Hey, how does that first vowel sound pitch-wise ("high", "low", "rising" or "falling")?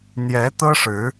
rising